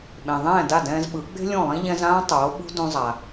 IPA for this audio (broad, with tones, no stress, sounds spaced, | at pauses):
ɓ ẽ˩ ðˤ ɛ̃ː˥˩ d a˥˩ d ɛ̃ː˧ z ɓ ɯ˩˥ ɡ͡b e̤˥ lʲ õ˥˩ lˠ ĩ˥ ʎ ɛ̃˧ z ãː˥ tˤ oː˩˥ ɓ ṳ˥ d ũ˧ zˤ a˩